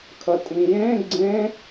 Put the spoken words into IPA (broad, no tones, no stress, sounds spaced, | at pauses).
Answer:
kʰ ə tʼ ĩ j ẽ ɡ͡ǀ ẽ